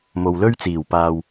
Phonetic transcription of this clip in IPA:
m o˨ w l ɵ˥ ɥ t͡s iː˨˩ w p aː˧ w

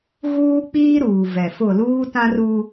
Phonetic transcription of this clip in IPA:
ɣ uː˦ k͡p iː˦ ɾ uː˨ v ɛ˨ f ʊ˦˨ l uː˦ t ã˦ r u˦

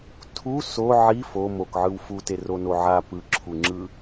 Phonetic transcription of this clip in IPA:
tʰ u s o ʕ i f o m o k ʕ ɯ w f u t e r o n o ʕ a p ɯ ǁʰ u ŋ͡ǁ ɯ

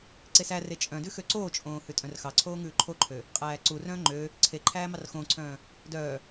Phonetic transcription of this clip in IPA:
ǀ e s æ r e t͡ʃʼ œ̃ d ʉ x ø ǀ oː t͡ʃʼ õː h ʉ tʼ œ̃ r x ɑ ǀʰ oː ŋ ʉː ǃʰ o ǃʰ ø | qʼ æː ǀ u r œ̃ː ŋ͡ǃ ø | ǀʰ e ǃʰ æː m ɑ r x õː ǀʰ œ̃ː | d œː

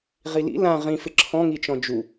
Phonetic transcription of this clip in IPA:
ʁ i l ḭ l ã ʁ ĩ f ɪ ǁʰ ɔ̃ ŋ i t͡ʃ ɔ̃ d͡ʒ u

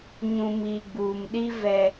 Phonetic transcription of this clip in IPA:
ɲ ũ˨ m i˨ ɡ͡b uː˨ m ɗ i˦ v ɛ˦

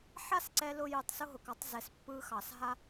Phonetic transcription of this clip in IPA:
ħ a˦ s ǀ ɛ˧ l ʊ˧ j ɯ˨ tˤ s ʊ˦ ɦ ʊ˨ k ɑ˦ tˤ z ɛ˨ s pː ɯ˧ x ɑ˨ s ɦ a˦

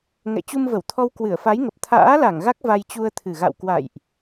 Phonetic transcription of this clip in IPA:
ŋ ɛ̰˧˨ t͡ɕ u˧ m v ə˧˩ w t̪ʰ ɔ˧ w k w ɨ˧˩ ə̯ f a˨˦ j ŋ ə˨˩ p̚ t̪ʰ a̰ː˧˥ l a˧˩ ŋ ɣ a˦˥ k̚ v a˧ j t͡ɕ u˧ ə̯ t̪ʰ ɨ˨˩ ɣ a̰˧˨ w k w a̰˧˨ j ʔ

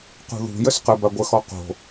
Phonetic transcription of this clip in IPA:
q ṳ ð ṳ j ə s q ə b a ɡʷ ə x ɔ q o̤

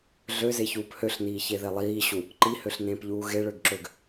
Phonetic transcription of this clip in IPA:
ɮ ø z e ç uː p h ø ɬ n iː ç e ð e lˠ iː ɕ u | ǃ i h ø ɬ n ẽː p ʎ uː ɣ e ɭ ø ɡ ǁ ø ɡ

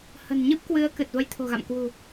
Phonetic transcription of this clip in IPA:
h ə̤˨˩ n ɲ ɨ˦˥ p̚ k w ɨ˨˦ ə̯ k ɨ˨˩ t̚ v ə˧ j t̪ʰ o̤˨˩ ɣ a̰˧˨ m k w ṳ˨˩

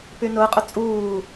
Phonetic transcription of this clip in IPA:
p y n ʊː qʼ ʊ t͡sʼ uː

